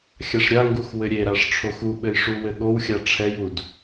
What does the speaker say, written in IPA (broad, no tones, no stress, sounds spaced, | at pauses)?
xʲ a ʂ ɾʲ a ŋ ɡ u x w ɘ ɾʲ e ɾ a ʂ ʈ͡ʂʰ o x u ɓ ɘ j ʂ u w ɘ ɠ o w xʲ a ʈ͡ʂʰ ɛ j u d